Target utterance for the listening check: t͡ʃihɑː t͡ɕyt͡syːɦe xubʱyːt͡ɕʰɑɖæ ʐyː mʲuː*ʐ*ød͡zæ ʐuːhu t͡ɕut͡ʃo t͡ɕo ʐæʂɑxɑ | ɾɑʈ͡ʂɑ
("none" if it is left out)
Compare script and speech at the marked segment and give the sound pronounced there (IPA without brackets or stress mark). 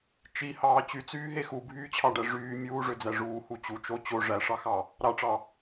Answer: ʐ